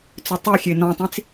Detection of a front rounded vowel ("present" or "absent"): present